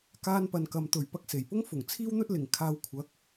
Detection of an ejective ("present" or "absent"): absent